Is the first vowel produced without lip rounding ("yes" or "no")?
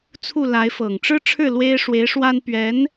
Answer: no